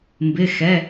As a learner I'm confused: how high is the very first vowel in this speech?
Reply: high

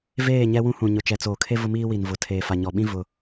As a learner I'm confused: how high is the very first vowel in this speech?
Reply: mid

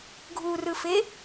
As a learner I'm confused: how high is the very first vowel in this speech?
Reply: high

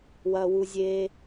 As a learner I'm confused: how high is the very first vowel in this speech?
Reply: low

